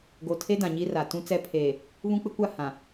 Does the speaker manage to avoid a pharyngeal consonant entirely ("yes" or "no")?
yes